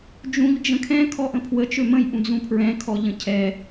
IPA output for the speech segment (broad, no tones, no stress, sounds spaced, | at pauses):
d͡ʒ ũ ʎ d͡ʒ ə̃ kʰ ɛ̃ kʰ ɔ ʔ ə̃ pʰ w ə t͡ʃ ø m ə̃ j ʔ ũ d͡z ũ pʰ ɹ ɛ̃ kʰ ɔ ʎ ə̃ cʰ ɛ